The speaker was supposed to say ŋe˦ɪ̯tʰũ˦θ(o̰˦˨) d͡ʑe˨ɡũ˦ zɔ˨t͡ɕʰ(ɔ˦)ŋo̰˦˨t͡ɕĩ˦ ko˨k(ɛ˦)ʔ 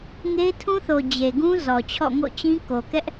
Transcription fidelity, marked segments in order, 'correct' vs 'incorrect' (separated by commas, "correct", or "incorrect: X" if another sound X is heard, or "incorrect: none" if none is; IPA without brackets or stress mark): incorrect: o˨, incorrect: ɔ̰˦˨, correct